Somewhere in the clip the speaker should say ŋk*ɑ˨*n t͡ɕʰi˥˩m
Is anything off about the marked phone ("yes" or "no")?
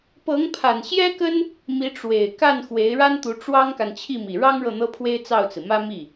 yes